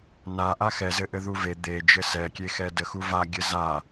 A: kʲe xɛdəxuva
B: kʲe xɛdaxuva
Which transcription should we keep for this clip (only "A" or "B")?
A